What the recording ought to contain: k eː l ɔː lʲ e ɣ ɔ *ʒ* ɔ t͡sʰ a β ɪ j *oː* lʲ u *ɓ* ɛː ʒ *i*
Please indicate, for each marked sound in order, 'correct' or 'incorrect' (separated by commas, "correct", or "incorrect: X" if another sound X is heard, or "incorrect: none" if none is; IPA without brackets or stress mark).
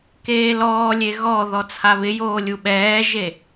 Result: incorrect: ð, correct, correct, incorrect: e